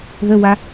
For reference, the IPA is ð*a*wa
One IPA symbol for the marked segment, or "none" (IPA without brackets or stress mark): ə